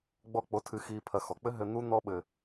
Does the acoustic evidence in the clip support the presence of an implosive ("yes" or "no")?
yes